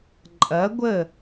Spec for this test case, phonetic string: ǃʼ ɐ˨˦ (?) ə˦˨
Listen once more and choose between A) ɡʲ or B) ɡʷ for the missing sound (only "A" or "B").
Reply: B